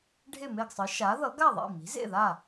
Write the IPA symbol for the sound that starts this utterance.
ɖʱ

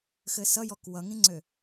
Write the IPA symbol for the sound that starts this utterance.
x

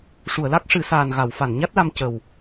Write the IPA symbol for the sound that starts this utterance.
ʂ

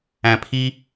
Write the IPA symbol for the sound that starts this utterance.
æ̃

